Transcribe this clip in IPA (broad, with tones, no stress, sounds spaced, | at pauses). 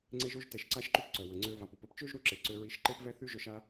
ŋ͡ǀ e˧ ʒ o˧ ʒ t ɛ˨ ʃ ǀ a˦ ʃ ǃ y˦ p ǀ œ˨ w ə˨ ŋ͡ǀ ø˧ v a˨ p u˨ p ə˦ p t͡ʃ ø˦ ʒ ɾ u˧ ǁ e˨ ǀ ø˧ ɹ i˧ ʃ ǃ e˦ p v ɛ˦ θ y˦ ʒ œ˧ ʃ a˧